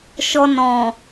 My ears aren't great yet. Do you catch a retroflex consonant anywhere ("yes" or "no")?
no